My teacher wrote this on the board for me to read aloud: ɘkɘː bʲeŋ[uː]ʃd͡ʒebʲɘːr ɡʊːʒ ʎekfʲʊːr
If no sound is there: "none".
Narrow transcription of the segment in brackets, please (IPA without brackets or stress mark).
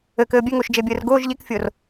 ʊː